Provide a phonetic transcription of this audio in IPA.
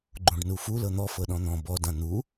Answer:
ɡ͡ǃ ũ ɖ n u f u l ɤ n̪ ɔ f ɤ ɗ ɔ̃ n̪ ɔ̃ b ɔ d ã n̪ u

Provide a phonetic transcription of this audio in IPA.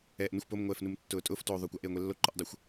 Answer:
ɛː ʔ n ʊ xʷ p o m ŋʷ ɛː f n u m tː ʊː tʼ ʊː f t oː ðˤ oː kʷ a ʔ eː ŋʷ e lː o ǃ ʊ ʔ dˤ ʊ xʷ

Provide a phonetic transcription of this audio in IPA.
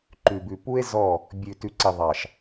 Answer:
ǃ ʉ˨ b ʉ˨ p u˦ e̯ z ɔ˦˨ | bʲ ʉ˨ t ʉ˨ ǀ i˨ ðˤ ɑ˨ ʃ

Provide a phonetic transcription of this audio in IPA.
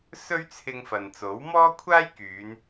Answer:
s ɵ˥ ɥ t͡sʰ ɪ˧ ŋ f ɐ˨ n t͡s o˨˥ w m ɔː˥ kʷʰ aː˥ j k yː˨˧ n

